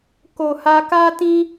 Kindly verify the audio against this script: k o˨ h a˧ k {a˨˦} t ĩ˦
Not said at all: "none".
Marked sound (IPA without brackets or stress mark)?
a˦